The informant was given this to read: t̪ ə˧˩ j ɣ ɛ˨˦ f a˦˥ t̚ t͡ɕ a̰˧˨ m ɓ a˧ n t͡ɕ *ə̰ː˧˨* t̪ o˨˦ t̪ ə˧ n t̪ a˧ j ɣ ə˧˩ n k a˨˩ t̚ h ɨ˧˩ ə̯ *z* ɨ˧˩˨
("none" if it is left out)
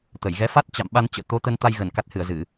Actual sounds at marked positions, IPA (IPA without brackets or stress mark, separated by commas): ə̰ː˧˨, z